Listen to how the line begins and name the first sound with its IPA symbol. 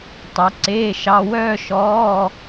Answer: tˤ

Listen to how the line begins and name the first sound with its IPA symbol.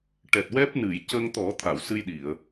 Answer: ʈ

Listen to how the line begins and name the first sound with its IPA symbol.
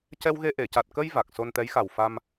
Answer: c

